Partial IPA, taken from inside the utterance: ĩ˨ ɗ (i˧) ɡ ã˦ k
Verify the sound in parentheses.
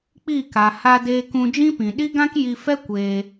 incorrect: i˦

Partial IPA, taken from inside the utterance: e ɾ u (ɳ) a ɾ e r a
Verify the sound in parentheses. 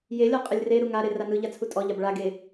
incorrect: ŋ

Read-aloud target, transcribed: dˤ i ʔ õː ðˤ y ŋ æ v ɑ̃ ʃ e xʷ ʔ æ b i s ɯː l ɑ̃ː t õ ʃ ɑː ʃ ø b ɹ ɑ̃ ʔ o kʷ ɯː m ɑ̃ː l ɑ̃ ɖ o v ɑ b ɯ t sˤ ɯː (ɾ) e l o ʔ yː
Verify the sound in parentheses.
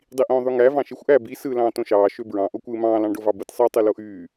incorrect: tˤ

